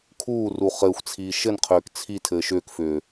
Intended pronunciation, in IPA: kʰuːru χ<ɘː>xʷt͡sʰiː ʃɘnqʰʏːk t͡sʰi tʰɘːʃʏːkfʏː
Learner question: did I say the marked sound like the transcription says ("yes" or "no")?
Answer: yes